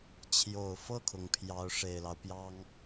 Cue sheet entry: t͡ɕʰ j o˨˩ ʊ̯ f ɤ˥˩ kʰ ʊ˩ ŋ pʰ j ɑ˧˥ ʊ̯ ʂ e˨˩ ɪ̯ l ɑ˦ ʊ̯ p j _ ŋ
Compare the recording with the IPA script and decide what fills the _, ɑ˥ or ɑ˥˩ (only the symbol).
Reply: ɑ˥